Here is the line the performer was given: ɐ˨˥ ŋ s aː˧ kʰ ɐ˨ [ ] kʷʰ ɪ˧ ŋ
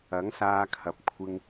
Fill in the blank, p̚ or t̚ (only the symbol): p̚